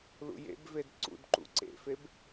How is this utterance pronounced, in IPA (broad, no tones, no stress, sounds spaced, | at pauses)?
l ṵ j ḛ b v e d ǀ ṵ d ǃ ṵ ǀ ḛ f e b